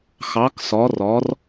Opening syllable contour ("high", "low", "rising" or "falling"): rising